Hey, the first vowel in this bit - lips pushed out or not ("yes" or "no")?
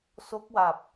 yes